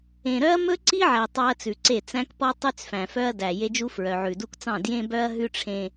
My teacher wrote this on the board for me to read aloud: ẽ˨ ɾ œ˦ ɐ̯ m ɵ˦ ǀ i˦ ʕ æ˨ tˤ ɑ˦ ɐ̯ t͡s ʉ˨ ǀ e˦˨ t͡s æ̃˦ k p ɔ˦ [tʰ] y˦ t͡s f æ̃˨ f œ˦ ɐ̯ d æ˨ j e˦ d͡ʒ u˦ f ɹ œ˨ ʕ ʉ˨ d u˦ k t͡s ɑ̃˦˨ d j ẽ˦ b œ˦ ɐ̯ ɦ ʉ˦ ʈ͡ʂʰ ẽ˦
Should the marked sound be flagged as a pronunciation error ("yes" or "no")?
yes